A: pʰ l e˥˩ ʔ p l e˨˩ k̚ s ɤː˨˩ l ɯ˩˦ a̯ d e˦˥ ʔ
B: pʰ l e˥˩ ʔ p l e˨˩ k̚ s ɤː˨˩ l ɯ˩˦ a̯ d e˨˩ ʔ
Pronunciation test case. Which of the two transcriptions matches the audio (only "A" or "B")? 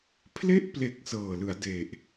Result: B